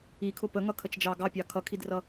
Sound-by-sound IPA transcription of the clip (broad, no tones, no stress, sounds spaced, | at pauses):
i kʰ ʊ p ə ŋ ʌ kʰ ə t͡ʃ d͡ʒ ɑ ɡ ɑ pʲ ɑ kʰ ʌ kʰ i d r ʌ